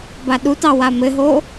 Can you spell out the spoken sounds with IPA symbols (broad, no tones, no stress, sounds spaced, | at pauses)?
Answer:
b a ɗ u t ɑ w a m ɘ ɦ o